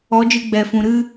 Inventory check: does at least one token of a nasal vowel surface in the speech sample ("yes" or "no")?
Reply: yes